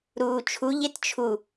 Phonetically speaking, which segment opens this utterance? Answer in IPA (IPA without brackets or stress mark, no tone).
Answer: ɾ